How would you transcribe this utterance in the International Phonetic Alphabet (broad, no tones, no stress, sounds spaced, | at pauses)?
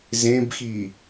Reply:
z ẽ b x i